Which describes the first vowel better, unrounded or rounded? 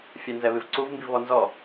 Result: unrounded